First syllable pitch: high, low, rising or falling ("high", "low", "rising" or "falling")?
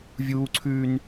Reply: high